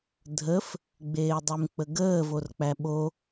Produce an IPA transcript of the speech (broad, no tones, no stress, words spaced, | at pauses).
dʱəf | ɡ͡beːdˤʉmk͡pəɡəː vork͡pæɓo